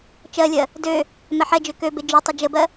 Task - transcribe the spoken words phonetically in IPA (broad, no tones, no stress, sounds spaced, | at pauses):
t͡ʃ ɜ lʲ ɜ | d ø | m ɛ ħ ɛ d͡ʒ ø k ø b e d͡ʒ ø tˤ ə d͡ʒ ə b ɜ